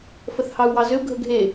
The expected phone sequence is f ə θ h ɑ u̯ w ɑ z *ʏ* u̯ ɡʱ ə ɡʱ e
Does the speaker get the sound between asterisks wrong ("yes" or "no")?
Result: no